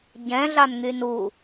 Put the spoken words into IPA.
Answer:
ɟɛ̃ɮanŋyn u

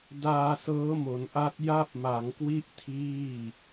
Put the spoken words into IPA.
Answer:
daː˧sɤː˦˥mo˩˦n ʔa˦˥t̚ ja˥˩p̚ma˩˦ŋkwi˥˩ʔ tʰiː˥˩

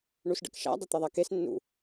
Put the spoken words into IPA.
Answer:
ɳusɖə̰kʃa̰ dˤət̪ɐðˤakes nːṵ

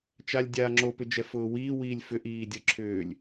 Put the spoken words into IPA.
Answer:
t͡ʃalʲdʲaːŋ͡ǁo pʏd͡ʒɛfʊːwiː wiːlʲfʏ ʔiːdʲə ǁʰʏːlʲ

